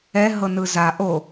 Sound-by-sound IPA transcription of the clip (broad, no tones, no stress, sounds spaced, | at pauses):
ɛ ɦ ɤ n ɯ z a ʔ o